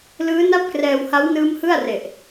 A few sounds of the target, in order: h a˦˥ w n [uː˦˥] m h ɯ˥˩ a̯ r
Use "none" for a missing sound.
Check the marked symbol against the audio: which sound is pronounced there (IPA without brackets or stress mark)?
ɯː˦˥